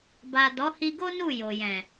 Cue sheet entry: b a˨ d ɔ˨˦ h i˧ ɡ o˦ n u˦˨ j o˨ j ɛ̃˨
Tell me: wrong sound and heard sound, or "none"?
none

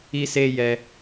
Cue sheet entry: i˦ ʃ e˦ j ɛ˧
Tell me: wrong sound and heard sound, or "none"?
ʃ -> s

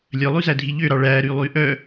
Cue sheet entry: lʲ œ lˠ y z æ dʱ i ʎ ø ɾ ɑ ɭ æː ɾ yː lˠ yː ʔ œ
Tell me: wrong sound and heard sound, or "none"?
none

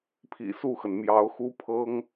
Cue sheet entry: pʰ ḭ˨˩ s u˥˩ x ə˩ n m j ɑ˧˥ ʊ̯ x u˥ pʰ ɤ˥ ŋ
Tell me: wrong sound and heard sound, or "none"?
none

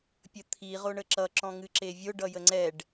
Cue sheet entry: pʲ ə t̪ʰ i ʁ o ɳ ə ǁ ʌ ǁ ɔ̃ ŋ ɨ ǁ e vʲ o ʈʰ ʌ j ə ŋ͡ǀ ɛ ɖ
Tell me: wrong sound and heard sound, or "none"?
ʈʰ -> ɖ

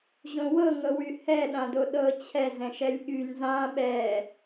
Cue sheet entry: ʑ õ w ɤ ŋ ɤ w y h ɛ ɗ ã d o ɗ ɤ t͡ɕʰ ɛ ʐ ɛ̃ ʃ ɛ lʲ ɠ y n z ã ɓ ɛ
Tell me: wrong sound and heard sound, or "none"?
ʐ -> z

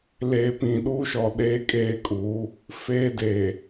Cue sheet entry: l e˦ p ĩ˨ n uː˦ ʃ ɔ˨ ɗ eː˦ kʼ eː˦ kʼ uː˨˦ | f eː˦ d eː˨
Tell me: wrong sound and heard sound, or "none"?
n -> ɗ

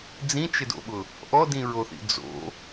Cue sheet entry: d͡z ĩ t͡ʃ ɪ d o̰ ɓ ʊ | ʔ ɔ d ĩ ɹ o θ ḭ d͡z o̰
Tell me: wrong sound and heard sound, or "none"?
none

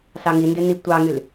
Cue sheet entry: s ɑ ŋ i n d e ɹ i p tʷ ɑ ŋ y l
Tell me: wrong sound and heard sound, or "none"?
ɹ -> n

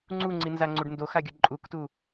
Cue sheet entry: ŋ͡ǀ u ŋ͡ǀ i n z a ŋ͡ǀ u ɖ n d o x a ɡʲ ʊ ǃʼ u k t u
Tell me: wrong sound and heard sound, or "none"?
ʊ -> ɯ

